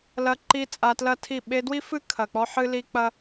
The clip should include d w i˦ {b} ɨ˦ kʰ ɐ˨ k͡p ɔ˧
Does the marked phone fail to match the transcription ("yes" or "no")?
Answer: yes